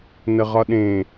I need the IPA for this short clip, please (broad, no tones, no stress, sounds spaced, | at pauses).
n ə ʁ ɒ ɗ ẽ